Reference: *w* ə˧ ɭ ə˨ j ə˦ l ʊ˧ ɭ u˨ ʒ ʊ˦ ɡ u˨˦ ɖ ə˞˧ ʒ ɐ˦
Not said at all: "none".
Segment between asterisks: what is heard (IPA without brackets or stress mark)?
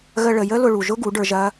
ɣ